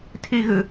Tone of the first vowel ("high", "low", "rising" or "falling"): high